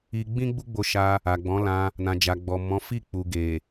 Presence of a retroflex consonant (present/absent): absent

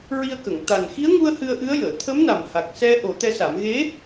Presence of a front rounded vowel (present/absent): absent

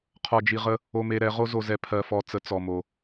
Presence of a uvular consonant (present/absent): present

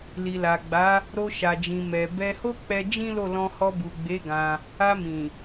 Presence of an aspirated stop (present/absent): absent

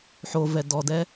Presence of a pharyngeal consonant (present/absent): present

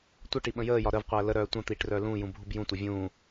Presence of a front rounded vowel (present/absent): present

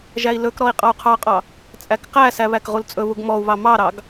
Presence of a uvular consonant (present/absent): present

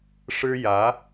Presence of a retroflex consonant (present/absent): present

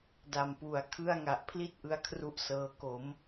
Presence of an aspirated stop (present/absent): present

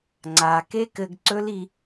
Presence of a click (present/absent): present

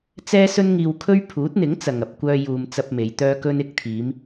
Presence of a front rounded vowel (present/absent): present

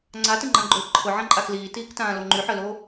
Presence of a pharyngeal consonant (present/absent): present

